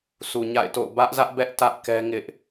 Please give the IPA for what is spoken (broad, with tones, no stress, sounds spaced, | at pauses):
sʰ u˨ ɲ a̰˦˨ ɪ̯ t o̰˦˨ ʊ̯ b ä˦ ʔ z ä˦ ʔ b ɛ˦ ʔ t ä˦ ʔ k ɛ˦ ŋ ɪ˦ ʔ